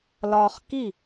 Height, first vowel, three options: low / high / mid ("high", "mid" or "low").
low